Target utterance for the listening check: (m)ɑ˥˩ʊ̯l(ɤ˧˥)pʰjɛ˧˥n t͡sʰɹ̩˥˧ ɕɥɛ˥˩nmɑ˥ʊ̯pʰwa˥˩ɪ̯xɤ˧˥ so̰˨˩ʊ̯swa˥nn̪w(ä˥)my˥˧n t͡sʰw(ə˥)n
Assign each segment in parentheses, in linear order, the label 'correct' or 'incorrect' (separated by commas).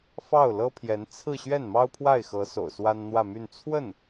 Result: incorrect, incorrect, incorrect, incorrect